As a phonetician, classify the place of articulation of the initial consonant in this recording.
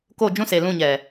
velar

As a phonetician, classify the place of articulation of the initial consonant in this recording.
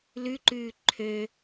alveolar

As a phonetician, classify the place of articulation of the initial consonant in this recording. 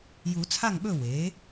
palatal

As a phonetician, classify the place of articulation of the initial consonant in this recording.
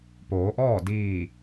labial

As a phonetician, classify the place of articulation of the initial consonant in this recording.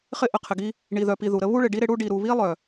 uvular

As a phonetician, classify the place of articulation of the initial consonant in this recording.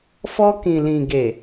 labial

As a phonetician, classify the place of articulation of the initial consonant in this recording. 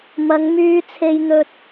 labial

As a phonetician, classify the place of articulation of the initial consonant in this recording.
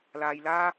alveolar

